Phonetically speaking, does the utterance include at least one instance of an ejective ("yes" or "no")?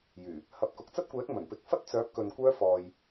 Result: no